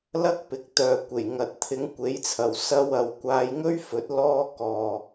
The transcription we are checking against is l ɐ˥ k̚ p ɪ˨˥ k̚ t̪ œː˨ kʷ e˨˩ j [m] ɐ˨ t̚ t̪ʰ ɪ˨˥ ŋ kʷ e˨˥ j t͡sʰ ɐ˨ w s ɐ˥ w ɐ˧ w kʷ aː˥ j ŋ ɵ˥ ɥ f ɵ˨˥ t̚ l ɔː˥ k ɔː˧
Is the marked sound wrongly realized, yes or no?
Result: yes